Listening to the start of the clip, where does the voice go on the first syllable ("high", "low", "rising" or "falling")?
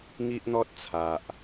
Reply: high